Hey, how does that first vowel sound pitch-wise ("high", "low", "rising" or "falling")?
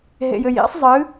low